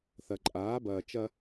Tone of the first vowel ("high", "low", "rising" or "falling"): low